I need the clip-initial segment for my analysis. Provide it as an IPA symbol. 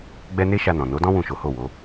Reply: ɡ͡b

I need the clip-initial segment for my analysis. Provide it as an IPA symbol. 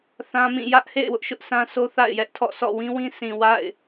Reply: θ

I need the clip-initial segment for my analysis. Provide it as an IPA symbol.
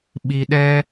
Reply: ɓ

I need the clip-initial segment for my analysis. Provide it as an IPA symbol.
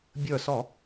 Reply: bʲ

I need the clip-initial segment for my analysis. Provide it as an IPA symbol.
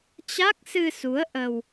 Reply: t͡ɕ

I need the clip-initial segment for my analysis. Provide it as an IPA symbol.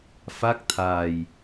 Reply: f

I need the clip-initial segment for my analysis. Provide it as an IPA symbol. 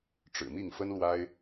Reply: ʈ͡ʂ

